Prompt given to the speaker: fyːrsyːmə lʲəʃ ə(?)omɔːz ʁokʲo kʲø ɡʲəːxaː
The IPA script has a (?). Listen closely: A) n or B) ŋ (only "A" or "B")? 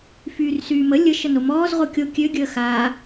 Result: A